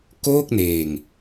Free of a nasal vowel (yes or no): yes